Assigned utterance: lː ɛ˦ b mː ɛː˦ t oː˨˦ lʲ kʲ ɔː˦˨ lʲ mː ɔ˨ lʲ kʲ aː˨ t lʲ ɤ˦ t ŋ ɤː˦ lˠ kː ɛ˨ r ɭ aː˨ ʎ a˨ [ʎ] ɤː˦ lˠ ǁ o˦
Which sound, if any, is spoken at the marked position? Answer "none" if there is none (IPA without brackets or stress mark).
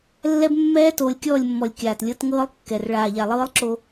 lˠ